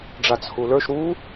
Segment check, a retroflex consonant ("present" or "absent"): present